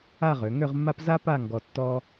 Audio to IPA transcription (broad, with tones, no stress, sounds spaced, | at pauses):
a˥˧ ʁ ø˩˧ ŋ ø˥˧ ʁ mː a˥ p z a˥ p a˥˧ ŋ ɡ ɔ˧ tː ɔ˥